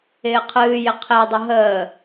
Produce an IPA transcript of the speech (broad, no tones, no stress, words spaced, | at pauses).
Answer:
ɪːqʰɨːjɪ qʰedˤɪ ɦəː